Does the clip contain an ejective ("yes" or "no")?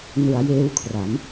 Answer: no